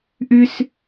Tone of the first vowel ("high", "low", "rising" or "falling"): high